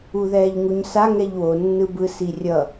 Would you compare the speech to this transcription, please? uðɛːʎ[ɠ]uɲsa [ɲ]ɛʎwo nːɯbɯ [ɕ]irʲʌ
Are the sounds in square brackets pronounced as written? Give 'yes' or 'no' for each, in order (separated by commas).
no, no, no